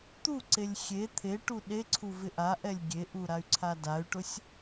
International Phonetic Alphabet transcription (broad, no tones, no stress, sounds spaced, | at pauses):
t̪ u ǀ e lʲ xʲ e t̪ʰ e ʈ u ɗ e ǀʰ u v ɪ ʔ a ʔ ɛ lʲ ɡʲ e ʔ u ɾ a y̯ ǀʰ a d a y̯ ʈ ʊ sʲ